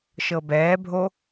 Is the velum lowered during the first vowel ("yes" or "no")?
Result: no